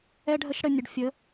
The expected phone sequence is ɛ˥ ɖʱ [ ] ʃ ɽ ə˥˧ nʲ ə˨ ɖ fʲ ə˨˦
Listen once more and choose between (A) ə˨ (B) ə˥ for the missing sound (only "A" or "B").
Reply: B